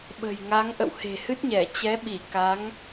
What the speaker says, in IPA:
ɓ ə̤˨˩ j ŋ a˨˦ ŋ ʔ ə̰˧˨ w h e̤˨˩ h ɨ˦˥ t̚ ɲ ɛ˧˩ t͡ɕ ɛ˨˦ ɓ i˧˩ k a˨˦ ŋ

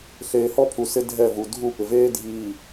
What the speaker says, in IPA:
ɬ eː˨ h ɔ˦ pʰ u˨ s ɪ˦ dʱ ɛ˦˨ v u˨ dʱ u˦˨ p ɪ˨ v eː˦ dʱ iː˨

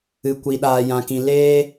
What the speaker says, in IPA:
ɨ˨ kʷ i˨ ɗ aː˨ j ã˨ k ĩ˨ l eː˦

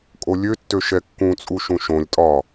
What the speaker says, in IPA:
kʼ o lʲ ø tː ø ʃ ɛ kː ũ t͡sʼ u ʃ ũ ʃ õ lʲ tʼ ɒ

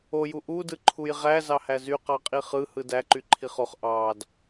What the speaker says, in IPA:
o j u ʔ u d ɯ ǃʰ u j ʁ æ z ɑ h æ z y q ɑ qʼ i χ ɯ h ɯ d æ ǃ y ǃʰ i χ o χ ʔ ɑ d

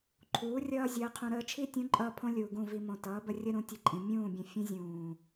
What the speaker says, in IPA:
ǃʰ uː˨˦ rʲ ʌː˦ zʲ əː˧ qʰ ũ˧ ɾ əː˧ t͡ʃʰ i˦ tʲ ũ˨˦ ǃʼ ʌː˧ pʰ õ˦ lʲ uː˨ ɡ ũ˦˨ v i˧ m õ˨ t ʌː˨˦ b ə˧ rʲ ə˦ ɾ ũ˧ tʲ ə˧ ǃʼ ĩ˨ mʲ ũː˦˨ bʲ ə̃˧ fʲ ə̃˦ zʲ ũː˨

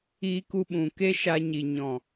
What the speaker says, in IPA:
iː˧ k u˧ ɓ ũ˨ k e˦ ʃ a˧ ɲ i˨ ɲ ɔ̃˨

